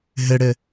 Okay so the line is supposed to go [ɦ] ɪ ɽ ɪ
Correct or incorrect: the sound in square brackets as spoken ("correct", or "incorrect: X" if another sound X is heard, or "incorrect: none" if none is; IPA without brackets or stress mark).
correct